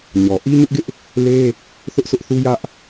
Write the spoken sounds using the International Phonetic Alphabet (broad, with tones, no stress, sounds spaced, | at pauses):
ɲ ɔ˨ ʔ i˦ ɲ ʊ˦ ʔ ɡ ɪ˦ ʔ | l e˦ | θ ʊ˦ ʔ sʰ ʊ˦ ʔ θ u˦ j ä˦ ʔ